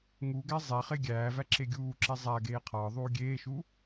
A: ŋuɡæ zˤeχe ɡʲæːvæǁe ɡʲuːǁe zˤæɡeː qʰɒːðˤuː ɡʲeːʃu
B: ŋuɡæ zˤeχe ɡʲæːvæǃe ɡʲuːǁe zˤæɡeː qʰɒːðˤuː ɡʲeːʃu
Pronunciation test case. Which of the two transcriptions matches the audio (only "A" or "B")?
A